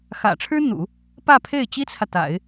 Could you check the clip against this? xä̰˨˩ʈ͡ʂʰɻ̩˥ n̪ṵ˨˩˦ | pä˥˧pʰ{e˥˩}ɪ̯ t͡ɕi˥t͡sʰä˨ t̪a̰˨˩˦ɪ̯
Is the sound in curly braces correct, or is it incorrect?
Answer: correct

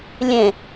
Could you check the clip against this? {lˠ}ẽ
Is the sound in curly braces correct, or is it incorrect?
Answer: incorrect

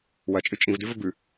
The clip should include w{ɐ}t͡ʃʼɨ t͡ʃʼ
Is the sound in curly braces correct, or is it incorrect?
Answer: correct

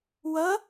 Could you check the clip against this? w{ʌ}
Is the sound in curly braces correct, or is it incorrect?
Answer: correct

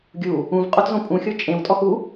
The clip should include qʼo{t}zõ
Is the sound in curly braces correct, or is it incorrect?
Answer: correct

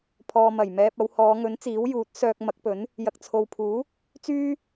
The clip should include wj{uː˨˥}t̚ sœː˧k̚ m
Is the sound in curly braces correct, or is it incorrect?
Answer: correct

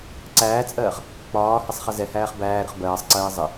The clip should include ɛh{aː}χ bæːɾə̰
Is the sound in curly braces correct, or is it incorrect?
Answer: incorrect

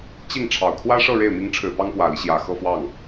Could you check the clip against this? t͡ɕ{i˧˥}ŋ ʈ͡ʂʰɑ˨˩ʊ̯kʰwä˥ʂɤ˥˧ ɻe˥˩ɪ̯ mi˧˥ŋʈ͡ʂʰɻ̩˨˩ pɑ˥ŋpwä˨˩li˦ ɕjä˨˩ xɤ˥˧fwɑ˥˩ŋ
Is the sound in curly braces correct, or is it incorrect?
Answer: incorrect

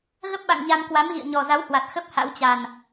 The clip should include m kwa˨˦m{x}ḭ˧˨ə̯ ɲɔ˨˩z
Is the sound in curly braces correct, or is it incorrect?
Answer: incorrect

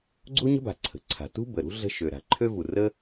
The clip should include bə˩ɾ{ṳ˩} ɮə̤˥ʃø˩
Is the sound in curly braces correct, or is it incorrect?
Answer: incorrect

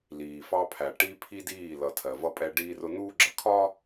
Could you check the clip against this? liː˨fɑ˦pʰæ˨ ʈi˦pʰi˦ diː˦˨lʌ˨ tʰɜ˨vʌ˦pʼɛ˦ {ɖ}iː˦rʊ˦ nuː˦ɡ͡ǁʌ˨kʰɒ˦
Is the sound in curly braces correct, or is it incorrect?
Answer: correct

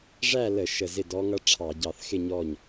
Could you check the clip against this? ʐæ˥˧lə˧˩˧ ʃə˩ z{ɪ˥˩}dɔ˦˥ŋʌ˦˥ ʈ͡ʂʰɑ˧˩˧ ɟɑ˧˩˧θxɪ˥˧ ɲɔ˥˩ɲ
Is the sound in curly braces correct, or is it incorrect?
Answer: correct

